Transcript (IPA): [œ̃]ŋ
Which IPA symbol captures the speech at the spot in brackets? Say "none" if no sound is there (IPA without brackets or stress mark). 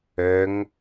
œ